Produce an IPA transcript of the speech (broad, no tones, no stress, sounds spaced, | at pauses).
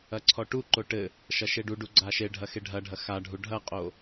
ɐ ǀʰ ɔ ʈ u ǃ o ʈ ɘ | ʃ ɐ ʃ e ɖ u ɖ u ɡ͡ǀ a ʃ e ɖʱ ɐ x e ɖʱ ɐ ɖʱ ɐ x a ɖʱ u ɖʱ ɐ qʼ o